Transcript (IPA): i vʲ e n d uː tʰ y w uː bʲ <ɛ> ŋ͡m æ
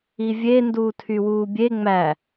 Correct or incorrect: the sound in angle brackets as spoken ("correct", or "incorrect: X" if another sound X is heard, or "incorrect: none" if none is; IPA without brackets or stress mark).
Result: incorrect: e